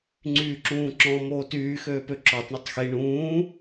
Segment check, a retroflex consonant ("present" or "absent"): present